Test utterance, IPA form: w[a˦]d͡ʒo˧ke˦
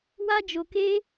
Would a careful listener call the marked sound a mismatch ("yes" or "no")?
no